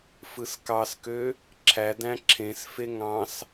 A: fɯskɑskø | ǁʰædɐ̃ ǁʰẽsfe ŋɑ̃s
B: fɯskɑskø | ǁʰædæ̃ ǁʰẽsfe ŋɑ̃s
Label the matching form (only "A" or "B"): B